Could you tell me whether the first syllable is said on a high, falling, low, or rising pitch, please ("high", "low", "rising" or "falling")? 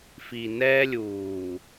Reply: low